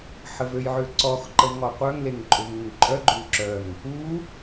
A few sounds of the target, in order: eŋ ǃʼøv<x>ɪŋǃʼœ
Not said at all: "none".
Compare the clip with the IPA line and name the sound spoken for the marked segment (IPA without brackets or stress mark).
ŋ